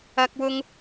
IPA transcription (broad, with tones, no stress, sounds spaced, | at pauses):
ɐ˥ k̚ w ʊ˥ ŋ